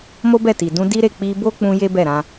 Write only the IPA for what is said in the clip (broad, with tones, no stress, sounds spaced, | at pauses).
m o˦ b ɛ˦˨ t i˨ d ũ˧ d i˦ ɾ e˦˨ k͡p i˧ b o˦ k͡p ũ˧ j e˦ b ɛ˦˨ ɾ ã˧